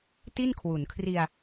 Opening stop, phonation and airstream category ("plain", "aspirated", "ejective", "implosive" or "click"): plain